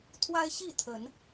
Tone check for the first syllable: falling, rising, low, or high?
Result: high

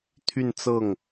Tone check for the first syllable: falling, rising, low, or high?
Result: falling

